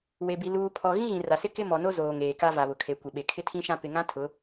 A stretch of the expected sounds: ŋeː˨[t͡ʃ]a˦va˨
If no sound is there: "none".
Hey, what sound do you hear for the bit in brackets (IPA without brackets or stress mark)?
k